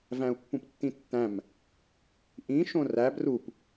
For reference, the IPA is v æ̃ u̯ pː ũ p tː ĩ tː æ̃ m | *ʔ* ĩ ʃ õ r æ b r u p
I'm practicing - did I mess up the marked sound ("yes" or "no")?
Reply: no